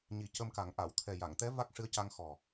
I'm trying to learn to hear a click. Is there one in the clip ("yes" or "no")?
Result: no